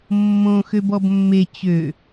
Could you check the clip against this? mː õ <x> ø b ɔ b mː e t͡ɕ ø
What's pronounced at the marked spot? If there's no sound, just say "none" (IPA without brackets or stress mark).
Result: x